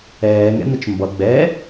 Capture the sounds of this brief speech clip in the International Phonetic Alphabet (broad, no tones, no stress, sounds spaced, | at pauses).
ɛː ŋ ɛ̰ n̪ ə t͡ʃ m b ʌ ɡ͡b ɛ